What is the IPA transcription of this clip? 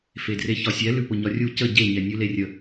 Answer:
f e d r e ç ɒ sʲ ɛ l ʉ p ʊ ɲ ɒ rʲ u c ə ɟ e ɲ ɛ nʲ ʉ l e rʲ ə

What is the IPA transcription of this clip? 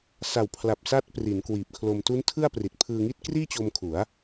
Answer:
s a˨˩ w pʰ l a˨˩ p̚ s a˦˥ t̚ p r i˩˦ n k w iː˨˩ p̚ kʰ l o˧ m t u˦˥ n tʰ ɯ˥˩ a̯ p r i˨˩ t̚ pʰ ɯː˧ ŋ i˥˩ t̚ k r iː˥˩ t͡ɕ o˧ m kʰ u˩˦ a̯

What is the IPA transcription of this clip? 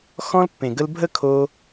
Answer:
x ɔ̃˦ l pː ẽ˨ ɡ ə˦ l bʱ ə˥ kʰ o˦

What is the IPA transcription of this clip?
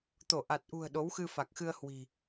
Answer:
t̪ o˧˩ ʔ a˨˩ t̚ ʔ ṳ˨˩ ə̯ ɗ o˨˦ w x ɨ˧ f a˨˩ k̚ x ɨ˧ ə̯ h w i̤˨˩

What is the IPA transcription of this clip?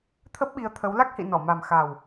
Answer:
t̪ʰ ə˦˥ p̚ ɓ i˨˦ ə̯ t̪ʰ ə˨˦ w l a˦˥ k̚ h ḭ˧˨ n ɔ˧˩ m a˨˩ m x a˨˩ w

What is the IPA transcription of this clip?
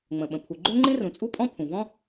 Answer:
ŋ͡m ə̃˩ ɓ ə̃˩ pʰ u˩ ɡ͡ǃ ø˥ ŋ͡ǃ ĩ˥ r ũ˩ t͡sʼ u˥ pʼ ɔ̃˥ pʰ ũ˩ v ɔ̃˥

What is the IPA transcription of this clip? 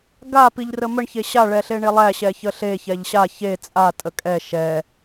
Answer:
ɡ a p i ʎ r ə m ə ɳ ç e ɕ a ɭ ɛ ɬ e ɳ e lˠ æ ɕ ɛ ç ə ɬ e ç ɛ ʎ ɕ a ç e t͡sʼ a tʼ ə kʼ ɛ ʃ ɛ

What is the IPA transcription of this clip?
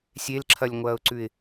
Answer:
sʲ e l ǁʰ ɐ lʲ ŋʷ ɐː ʊ̯ ǀ ʉ ɪ̯

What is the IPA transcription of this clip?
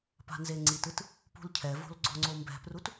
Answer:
p a̤ n z e ŋ͡ǀ i t ɯ t | p ṳ l cʰ ɛ v o̤ l ɡ͡ǀ o ŋ͡ǀ o m b ɛ̤ p r u t

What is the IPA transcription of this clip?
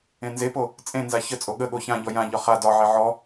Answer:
ẽ n z e p o | t͡sʼ ẽ n z a ç ə t͡sʼ o ɠ ə ɠ o ç ã ʎ ɔ j ã ʎ ɒ χ a d ɒ ʕ e ʕ ɔ

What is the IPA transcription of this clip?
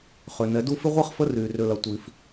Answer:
χ ø˨ n ɛ˨˦ d u˦ f ɪ˦ ʁʷ ɛ˦ χ f ə˦ r y˨ r ʏ˦ l ɐ˧ tʷ i˧ f

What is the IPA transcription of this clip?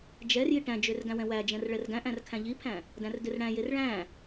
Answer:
d͡ʒ ɛ r j i ʈ æ̃ d͡ʒ ø r ɡ æ̃ w ɛ̃ w æ d͡ʒ ɛ̃ r ɭ ɛ r ɡ æ̃ ʔ æ̃ r kʰ æ̃ ʎ i pʰ æ̃ | d æ̃ r d ø r ɽ æ̃ j e r ɭ æ̃

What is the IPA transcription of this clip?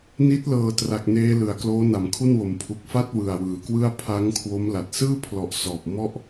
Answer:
n i˦˥ t̚ l ɤː˨˩ t r a˨˩ k̚ n eː˧ l ɯ˩˦ a̯ k l oː˦˥ n a˨˩ m kʰ u˥˩ n w o˨˩ m pʰ u˨˩ k̚ f a˥˩ t̚ w ɯ˨˩ a̯ w ɯː˩˦ k w ɯ˥˩ a̯ pʰ a˦˥ ŋ kʰ w o˦˥ m l a˨˩ t̚ s ɯː˥˩ pʰ l ɔ˨˩ ʔ s ɔː˨˩ p̚ m ɔ˥˩ ʔ

